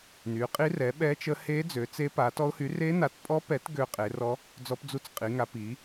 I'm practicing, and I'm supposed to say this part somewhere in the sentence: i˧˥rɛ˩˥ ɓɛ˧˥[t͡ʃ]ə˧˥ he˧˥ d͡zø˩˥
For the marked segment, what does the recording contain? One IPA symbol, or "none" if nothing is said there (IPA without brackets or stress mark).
t͡ʃ